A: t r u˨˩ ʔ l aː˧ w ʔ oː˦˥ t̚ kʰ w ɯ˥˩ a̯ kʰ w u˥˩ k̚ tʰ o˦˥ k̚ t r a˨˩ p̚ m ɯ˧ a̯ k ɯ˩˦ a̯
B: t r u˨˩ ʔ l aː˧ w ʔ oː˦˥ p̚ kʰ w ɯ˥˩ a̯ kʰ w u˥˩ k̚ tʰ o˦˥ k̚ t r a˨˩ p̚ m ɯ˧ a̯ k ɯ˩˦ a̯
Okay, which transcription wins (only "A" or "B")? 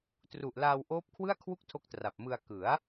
B